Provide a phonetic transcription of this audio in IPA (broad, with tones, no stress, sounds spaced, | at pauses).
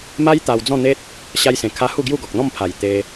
m a˦ j t̪ a˧ w d͡z ɔ̃˥˧ n̪ e˦ t̚ | ɕ a˧ j s ẽ˨˩ kʰ a˧ h u˥˧ ɡ j u˥˧ ɡ ɔ˨ k̚ n̪ ɔ̃˥˧ m pʰ a˨˩ j t̪ e˧